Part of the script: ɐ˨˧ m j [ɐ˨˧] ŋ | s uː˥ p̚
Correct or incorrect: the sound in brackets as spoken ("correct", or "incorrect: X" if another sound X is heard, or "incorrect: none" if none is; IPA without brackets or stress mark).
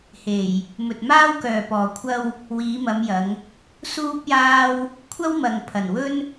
correct